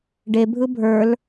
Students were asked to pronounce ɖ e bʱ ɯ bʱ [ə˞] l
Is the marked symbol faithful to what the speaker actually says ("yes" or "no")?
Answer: yes